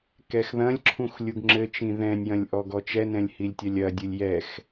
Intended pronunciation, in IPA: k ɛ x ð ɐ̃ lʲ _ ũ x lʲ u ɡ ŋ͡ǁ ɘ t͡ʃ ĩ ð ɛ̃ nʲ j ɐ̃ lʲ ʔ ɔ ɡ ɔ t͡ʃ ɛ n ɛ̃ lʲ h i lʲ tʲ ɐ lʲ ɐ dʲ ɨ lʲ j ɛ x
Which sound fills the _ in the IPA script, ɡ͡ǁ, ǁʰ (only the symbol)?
ǁʰ